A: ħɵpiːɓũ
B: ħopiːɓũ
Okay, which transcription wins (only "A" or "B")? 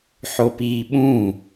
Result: B